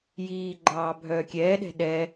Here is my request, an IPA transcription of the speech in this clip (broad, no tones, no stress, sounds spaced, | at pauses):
j iː ɡ͡ǃ ɑː bʱ œː kʲ ɛː ɗ ɛ̤ ɗ ɛː